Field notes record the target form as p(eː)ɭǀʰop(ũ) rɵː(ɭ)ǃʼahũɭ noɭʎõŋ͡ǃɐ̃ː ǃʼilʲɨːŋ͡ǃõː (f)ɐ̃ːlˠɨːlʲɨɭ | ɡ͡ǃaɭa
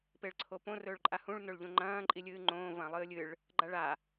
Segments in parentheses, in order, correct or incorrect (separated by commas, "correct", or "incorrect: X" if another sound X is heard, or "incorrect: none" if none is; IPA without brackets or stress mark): incorrect: e, incorrect: õ, correct, incorrect: v